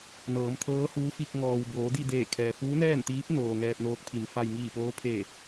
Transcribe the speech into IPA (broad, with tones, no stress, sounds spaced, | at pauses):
n ɤː˩˧ m t̪ʰ ɤː˧˥ h uː˧˥ f i˧ k̚ ŋ ɔː˩ w b oː˩˧ d i˥˨ d eː˧˩ kʰ ɛː˩ f uː˧˥ n ɛː˥˨ n t̪ iː˧˥ p̚ n oː˩ ŋ ɛː˧ p̚ n oː˧˥ k̚ pʰ i˩˧ m f a˧ j ŋ iː˧˩ p oː˧˥ pʰ eː˧˩